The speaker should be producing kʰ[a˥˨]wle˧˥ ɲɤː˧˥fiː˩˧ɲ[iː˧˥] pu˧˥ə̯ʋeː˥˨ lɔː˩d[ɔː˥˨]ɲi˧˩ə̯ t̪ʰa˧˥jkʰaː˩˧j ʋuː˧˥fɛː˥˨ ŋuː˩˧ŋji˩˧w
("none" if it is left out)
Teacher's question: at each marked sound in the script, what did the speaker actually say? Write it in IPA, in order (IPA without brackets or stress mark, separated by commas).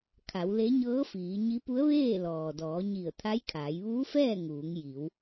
a˩˧, i˧˥, ɔː˩˧